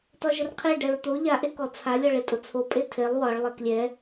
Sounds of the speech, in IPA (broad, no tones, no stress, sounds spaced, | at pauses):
t ɒ ʒ ə r qʰ e ɖ ɛ ɹ t̪ o ʎ a ʔ e k ɔ t͡sʰ a lʲ ɒ ɭ e tʼ ʊ t͡sʰ o pʼ e tʰ e lˠ w ɒ ɭ lˠ ɛ k lʲ ɛ